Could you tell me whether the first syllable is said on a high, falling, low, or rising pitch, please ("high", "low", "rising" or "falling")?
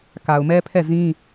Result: low